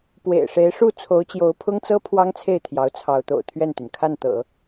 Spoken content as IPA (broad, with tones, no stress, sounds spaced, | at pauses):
p w ḛ˨˩ ɪ̯ ʂ e˧˥ ɪ̯ ʂ u˥˩ t͡sʰ o˧˥ ʊ̯ t͡ɕ j o˧˥ ʊ̯ pʰ ʊ˥ ŋ t͡s ɤ˥ pʰ w ɑ˥ ŋ t͡sʰ e˥˩ ɪ̯ t̪ʰ j ɑ˧˥ ʊ̯ t͡sʰ ɑ˧˥ ʊ̯ t̪ o̰˨˩ ʊ̯ t̪ʰ ɥ ɛ˥˩ n t̪ y˩ n kʰ a˥˩ n t̪ ɤ̰˨˩˦